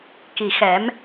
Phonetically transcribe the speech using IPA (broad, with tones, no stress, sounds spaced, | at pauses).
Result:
k i˨˩ x ɛ˨˩˦ m